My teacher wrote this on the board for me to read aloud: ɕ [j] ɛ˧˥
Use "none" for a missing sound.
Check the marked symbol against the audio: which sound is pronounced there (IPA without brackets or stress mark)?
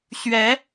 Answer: ɥ